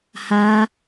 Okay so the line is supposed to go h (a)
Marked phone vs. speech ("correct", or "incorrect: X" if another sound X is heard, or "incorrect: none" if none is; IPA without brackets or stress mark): correct